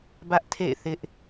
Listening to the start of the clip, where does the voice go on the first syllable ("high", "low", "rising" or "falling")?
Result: high